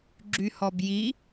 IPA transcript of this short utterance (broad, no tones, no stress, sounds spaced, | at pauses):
ɡ͡ǁ y h ɔ b j i